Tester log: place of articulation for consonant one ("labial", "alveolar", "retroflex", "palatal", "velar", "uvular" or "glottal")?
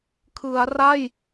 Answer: velar